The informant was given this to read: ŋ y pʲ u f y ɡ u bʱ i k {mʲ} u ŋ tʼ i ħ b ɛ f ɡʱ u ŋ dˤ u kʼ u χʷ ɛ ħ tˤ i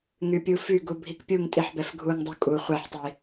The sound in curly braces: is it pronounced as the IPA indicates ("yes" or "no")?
no